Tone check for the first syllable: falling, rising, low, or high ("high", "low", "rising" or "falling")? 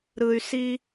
low